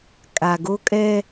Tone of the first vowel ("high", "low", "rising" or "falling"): low